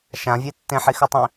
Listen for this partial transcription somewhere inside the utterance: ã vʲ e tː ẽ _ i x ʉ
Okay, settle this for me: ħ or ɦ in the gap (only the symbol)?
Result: ħ